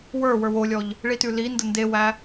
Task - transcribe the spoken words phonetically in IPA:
w ə˞ w ə˞ w o lʲ ɔ ʎ | ɭ i t ʉ l i n d ə n d e w æ

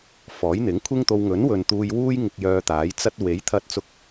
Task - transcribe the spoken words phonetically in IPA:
f ɔː˨˥ j n̪ ɪ˨˥ ŋ kʷʰ ɪ˥ ŋ t̪ o˧ w ŋ ɵ˨˥ n w ɵ˨ n t̪ uː˧ j w uː˥ j ŋ ɪ˧ k̚ j œː˧ t̪ aː˨˥ j t͡s ɐ˧ t̚ w e˨˥ j t̪ʰ ɐ˧ t̚ t͡s ʊ˧ k̚

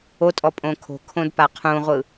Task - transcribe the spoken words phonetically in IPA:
o tʼ ɔ pʼ õ kʰ o̤ kʰ õ d p a qʰ ũ ʁʷ ɯ

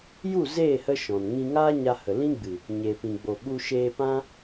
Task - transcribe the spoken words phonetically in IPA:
j u˦˨ z eː˦˨ h ə˦ ʃ ɔ̃˨ n ŋ ĩ˧ ŋ aː˦ ɲ a˧ h ə˨ l ĩ˦ ɡ͡b ɨ˨ | ɲ e˨ p ĩ˨ ɡ͡b o˨ ɓ u˧ ʃ eː˧ p ã˦

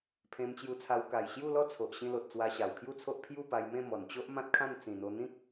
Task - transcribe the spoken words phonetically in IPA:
pʰ ẽ˧ m t͡ɕ j u˧ t͡sʰ a˧ w k a˨˩ j ɕ j u˥˧ l ɔ˥˧ t͡sʰ o˨ ʔ ɕ ĩ˧ l o˨ t̚ t͡s w a˧ ɕ a˨˩ w kʰ j u˥˧ t͡sʰ o˦ ʔ pʰ j u˥˧ p a˧ j m ẽ˥˧ m ɔ˨˩ n t͡ɕ o˦ ʔ m ã˦ t̚ kʰ ã˥˧ n t͡s ĩ˨˩ n̪ o˧ n̪ ĩ˦ k̚

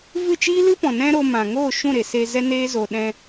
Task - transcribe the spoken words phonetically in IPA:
v ɨ˦˨ t͡ʃ iː˦ l ɨ˦ p ɔ̃˨ n ɛ̃˦ ɾ o˧ m ã˨ ŋ oː˦˨ ʃ ũ˦˨ ɾ e˨ s eː˧ z ɛ˦ n eː˦ z o˧ ɗ ɛ̃˧

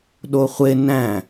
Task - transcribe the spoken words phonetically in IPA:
ɗ o χʷ e n æ̃

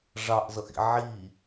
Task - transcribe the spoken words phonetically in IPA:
ʐ ɑ ʔ z ʌ ʔ ḭ ʕ i

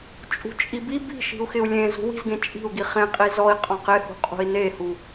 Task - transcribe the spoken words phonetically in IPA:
t͡ʃʼ ṳ t͡ʃʼ i b i b i̤ ʃ i̤ u̯ x ɪ u̯ lʲ ẽ z ṳ w i̤ z ɡ ẽ t͡ʃʼ i̤ u̯ ɡ i χ ẽ qʼ i z ɔ i̯ qʼ ɔ̃ q ɪ h ṳ qʼ ṳ i̯ n e h u

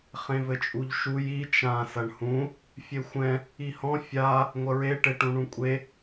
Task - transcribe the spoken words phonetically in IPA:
χ ẽ v ɘ t͡ʃʼ u ʎ ʃ u j i t͡ʃ ã s ɐ ɳ h ũ | fʲ e xʷ ɛ̃ | i h ɔ̃ fʲ a | ŋʷ ɐ ɹ e ʈ e ʈ ũ ɳ ũ kʷʼ e

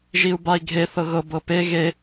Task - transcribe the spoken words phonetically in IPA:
ʒ i u̯ b a i̯ ɡʱ e θ ɤ ɣ ɤ b ɤ p e ɣ e

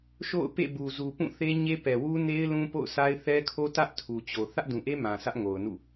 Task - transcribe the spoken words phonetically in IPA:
ʃ o̰˦˨ ʊ̯ p ḛ˦˨ b u˨ z u˨ p ũ˦˨ θ e˦ ɲ e˦ p ɛ˨ w u˦ n e˦ ɪ̯ l ũ˦ p o̰˦˨ ʊ̯ sʰ a˦ ɪ̯ θ ɛ˦ kʰ o˦ t ä˦ ʔ tʰ u˨ t͡ɕ o˨ θ ä˦ ʔ d ũ˨ ʔ e˦ m ã˨ s ä˦ ʔ ŋ o˨ ʊ̯ n ṵ˦˨

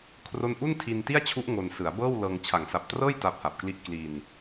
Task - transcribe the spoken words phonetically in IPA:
kʰ r o˥˩ n ʔ u˥˩ n tʰ i˧ n t i˥˩ a̯ t͡ɕʰ u˦˥ ʔ ŋ o˧ n s ɯ˩˦ a̯ b ɤː˥˩ w l ɤː˧ ŋ t͡ɕʰ a˩˦ ŋ s a˨˩ p̚ t r ɤː˥˩ j t a˦˥ p̚ h a˨˩ p̚ k l i˥˩ ʔ k l i˧ n

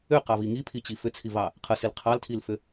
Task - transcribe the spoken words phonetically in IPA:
ʏ q ɑ v i ŋ i pʰ i t͡ɕ i f ʏ t͡sʰ i v ɑ | qʰ ə s i l qʰ ɑ l tʰ i l f ʏ

